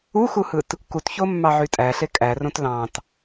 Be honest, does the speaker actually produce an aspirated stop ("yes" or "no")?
no